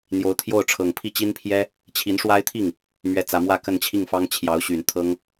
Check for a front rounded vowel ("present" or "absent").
present